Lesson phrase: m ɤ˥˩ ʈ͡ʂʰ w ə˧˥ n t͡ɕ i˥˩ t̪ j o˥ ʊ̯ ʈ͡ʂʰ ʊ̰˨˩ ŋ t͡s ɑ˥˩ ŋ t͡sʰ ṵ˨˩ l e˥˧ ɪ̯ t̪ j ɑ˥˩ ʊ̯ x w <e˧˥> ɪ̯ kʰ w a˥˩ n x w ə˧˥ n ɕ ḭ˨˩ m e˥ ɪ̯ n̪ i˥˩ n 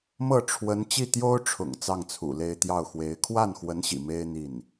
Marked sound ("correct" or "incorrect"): correct